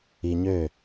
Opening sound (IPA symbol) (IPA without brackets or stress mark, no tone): i